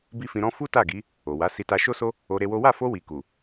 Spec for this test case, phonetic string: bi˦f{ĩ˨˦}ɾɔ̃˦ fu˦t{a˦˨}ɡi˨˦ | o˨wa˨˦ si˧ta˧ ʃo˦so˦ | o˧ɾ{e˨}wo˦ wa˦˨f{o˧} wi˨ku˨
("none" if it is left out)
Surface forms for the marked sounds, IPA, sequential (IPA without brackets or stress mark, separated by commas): ĩ˧, a˦˨, e˧, o˧